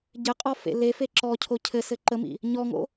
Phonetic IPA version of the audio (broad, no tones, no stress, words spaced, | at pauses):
ɟɘqʼɔ fḛlefe ǁɔcʰo cʰɘsɘ ǃəmḭ | ɲɔŋo̰